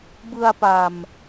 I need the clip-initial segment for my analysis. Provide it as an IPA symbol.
b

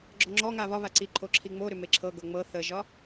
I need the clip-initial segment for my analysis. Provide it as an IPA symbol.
ɡ͡ǁ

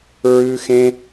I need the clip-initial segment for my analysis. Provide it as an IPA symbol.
ɹ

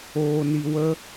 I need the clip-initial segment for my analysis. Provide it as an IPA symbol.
oː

